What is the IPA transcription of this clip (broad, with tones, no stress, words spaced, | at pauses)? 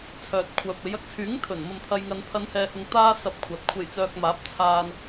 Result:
t͡sʰœː˨t̚kʷʰœː˨p̚e˨˧j ɐ˧k̚t͡sʰyː˨˥ŋ t̪ʰɵ˨˩nmɐ˨m t̪ʰɐ˨jŋɐ˨n t̪ʰɐ˨˧nhɛː˨hʊ˨ŋ t̪aː˥ sɐ˧p̚kʷʰɐ˨t̚ kʷʰe˨˩jt͡sœː˨k̚ maː˨˥p̚ t͡sʰaː˧n